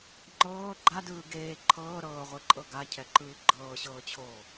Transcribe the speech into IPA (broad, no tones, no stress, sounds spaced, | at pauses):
ŋ͡ǃ ɤː ɡ͡ǃ a d ɯː ɡ eː ǃʰ ɤː ɾ ɤː ʁʷ e ǃʼ ɤ ɡ a cʰ ɛ ǃ ɯː ɡ͡ǃ ɤː ɕ ɤː t͡ɕʰ oː